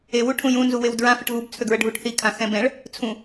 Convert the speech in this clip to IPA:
e w u ʈʰ ũ j ũ n z u w e w d ɹ ã f ə ʈ ɣ u b t͡sʰ ø ɡ ɹ ə ɖʱ u ʈ θ i kʰ ã x ɛ̃ b ɛ̃ ɭ | t͡sʰ ũ

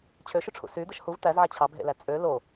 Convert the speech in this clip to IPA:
t͡ɕʰ ø ʃ y ʈ͡ʂʰ ṵ s y d̪ ɯ ʃ h u v t̪ æ z ʕ æ t͡ɕʰ ɑ b ɦ ḛ l æ t͡sʼ ø l o

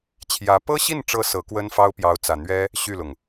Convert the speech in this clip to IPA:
t͡ɕʰ j ä˧˥ p ɤ˥ ɕ i˥˩ n ʈ͡ʂ ɤ˧˥ s ɤ˧˥ k w ə˥ n f ɑ˥ ʊ̯ p j ɑ˧˥ ʊ̯ t͡s ä˨˩ n̪ ɥ ɛ˥ | ɕ y˥˩ l ʊ˩ ŋ

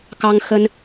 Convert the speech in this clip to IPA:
k ɑ˦ ŋ x ə˦ n

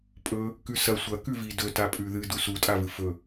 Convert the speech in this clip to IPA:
pʼ ɵ | k ʉ s ɐ sʷ ɐ k ʉ v i d ɵ t a pʼ ʉ ð ɨ d u s u tʼ a v ɨ f ɵ

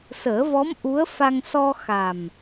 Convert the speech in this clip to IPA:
s əː˨˩˦ v ɔ˧˥ m ʔ u˧˥ ə̯ f a˧ ŋ s ɔ˧ x a˨˩ m

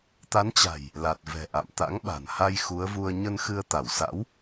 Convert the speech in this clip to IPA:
t̪ a˨˦ n t͡ɕ a̤˨˩ j | l a˨˩ t̚ v ɛ̤˨˩ ʔ a̰˧˨ m t̪ a̰˧˥ ŋ ɓ a̤˨˩ n h a˧ j x u˨˦ ə̯ v u˧ ə̯ ɲ ə˧ n x ɨ˧ ə̯ t̪ a˧˩ w s a̰˧˥ w

